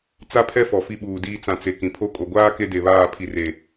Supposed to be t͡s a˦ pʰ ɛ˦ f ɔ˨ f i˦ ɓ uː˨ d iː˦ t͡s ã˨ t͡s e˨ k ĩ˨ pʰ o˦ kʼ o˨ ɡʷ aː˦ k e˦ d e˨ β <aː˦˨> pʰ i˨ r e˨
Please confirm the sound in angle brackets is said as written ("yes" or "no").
yes